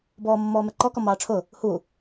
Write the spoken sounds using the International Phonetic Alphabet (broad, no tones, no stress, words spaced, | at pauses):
bɔːmːɔːmɛǃɔ kɔmɑːʈ͡ʂʰʊ | hu